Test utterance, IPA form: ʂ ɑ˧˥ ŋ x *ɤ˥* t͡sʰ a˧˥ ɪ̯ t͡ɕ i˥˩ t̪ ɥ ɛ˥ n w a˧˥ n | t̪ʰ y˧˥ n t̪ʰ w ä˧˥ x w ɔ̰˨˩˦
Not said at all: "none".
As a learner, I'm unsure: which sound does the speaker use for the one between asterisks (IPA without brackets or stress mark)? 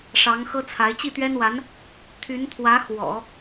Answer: ɤ˥